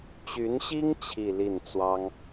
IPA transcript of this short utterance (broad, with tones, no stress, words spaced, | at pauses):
t͡ɕy˧˥nɕi˥ŋ t͡ɕʰi˥˧li˥˩n t͡swɑ˥ŋ